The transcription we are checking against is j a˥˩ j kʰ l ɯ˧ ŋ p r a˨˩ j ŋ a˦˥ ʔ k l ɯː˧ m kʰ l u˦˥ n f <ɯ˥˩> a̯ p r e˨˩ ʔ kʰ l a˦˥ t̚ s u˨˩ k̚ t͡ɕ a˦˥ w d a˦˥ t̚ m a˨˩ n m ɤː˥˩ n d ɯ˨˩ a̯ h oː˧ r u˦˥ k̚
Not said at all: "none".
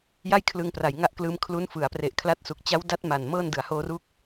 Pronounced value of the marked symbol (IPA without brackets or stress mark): ɯ˩˦